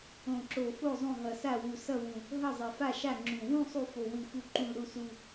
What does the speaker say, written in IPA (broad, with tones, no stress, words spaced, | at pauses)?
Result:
õ˨˩ǁo˨˩fo˦˨ zˤõ˦˨ɦʌ˨˩sa˦˨wu˨˩ sʌ˦˨wũ˨˩ | ɦʌ˦˨zˤɛ˨˩fa˦˨ʃa˦˨ ŋ͡ǁũ˨˩ wũ˦˨ sˤu˦˨fo˨˩ wɯ˨˩fu˨˩ǃũ˨˩l ɾu˨˩su˨˩